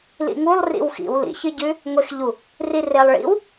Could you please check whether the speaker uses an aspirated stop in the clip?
no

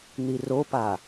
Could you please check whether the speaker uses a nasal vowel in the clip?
no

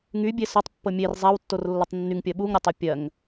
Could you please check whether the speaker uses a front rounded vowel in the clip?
yes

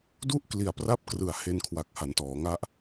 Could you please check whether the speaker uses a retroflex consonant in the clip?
no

